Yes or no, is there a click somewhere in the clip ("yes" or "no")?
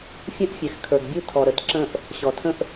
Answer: yes